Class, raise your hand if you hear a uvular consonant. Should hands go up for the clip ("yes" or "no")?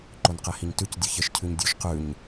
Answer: yes